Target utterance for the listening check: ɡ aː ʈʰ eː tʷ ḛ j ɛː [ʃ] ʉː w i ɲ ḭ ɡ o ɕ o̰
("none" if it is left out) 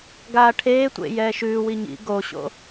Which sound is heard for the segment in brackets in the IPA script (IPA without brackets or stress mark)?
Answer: ʃ